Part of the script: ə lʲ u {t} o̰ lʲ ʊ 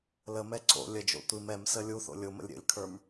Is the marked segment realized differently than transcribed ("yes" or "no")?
yes